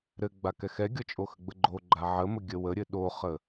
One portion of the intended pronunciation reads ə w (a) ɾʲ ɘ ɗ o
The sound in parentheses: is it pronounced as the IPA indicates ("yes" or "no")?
no